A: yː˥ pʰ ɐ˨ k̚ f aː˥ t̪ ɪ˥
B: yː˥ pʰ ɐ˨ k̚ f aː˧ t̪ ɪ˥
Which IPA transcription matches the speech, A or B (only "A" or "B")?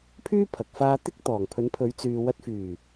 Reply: B